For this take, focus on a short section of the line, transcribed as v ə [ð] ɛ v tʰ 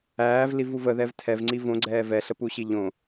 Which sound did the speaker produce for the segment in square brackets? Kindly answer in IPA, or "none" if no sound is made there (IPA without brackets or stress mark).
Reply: ð